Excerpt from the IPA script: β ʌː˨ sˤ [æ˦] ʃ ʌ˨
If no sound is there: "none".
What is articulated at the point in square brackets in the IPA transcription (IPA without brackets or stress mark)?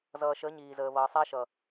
æ˦